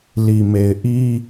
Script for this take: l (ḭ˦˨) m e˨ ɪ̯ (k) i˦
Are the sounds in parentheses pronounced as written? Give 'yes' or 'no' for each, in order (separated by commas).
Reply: no, no